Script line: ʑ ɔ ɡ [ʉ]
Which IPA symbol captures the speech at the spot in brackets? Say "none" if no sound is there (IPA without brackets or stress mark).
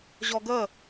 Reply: ə